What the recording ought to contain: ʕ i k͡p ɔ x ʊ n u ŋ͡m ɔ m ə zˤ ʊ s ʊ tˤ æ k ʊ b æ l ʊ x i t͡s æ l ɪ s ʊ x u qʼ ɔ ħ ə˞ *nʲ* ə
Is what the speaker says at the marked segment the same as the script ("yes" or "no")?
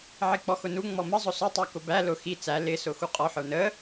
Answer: no